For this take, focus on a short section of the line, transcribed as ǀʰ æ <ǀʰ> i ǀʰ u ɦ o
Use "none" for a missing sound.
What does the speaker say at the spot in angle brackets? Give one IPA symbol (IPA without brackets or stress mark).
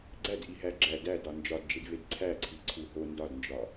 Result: ǀʰ